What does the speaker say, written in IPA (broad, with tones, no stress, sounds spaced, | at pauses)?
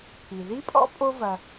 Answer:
pʰ i˩ ð i˥ pʼ ɔ̰˥ pʼ o˦ v ɐ˨